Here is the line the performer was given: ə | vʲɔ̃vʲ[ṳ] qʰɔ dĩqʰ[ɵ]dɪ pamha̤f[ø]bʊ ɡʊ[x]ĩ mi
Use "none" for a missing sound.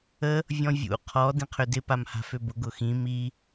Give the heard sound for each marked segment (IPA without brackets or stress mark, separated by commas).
ṵ, ø, ø, x